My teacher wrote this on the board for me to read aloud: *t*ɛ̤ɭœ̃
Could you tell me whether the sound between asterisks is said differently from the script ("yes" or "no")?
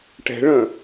yes